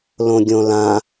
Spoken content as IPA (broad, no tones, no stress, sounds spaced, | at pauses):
l õ ɡʲ õ l ã